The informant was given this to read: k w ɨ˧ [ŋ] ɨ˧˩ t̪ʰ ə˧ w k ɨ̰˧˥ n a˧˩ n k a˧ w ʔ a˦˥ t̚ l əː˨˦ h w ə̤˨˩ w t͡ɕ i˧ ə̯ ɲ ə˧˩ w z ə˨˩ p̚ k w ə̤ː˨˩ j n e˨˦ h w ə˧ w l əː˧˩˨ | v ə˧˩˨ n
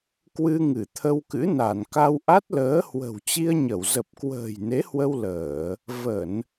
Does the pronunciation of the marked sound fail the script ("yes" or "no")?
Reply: no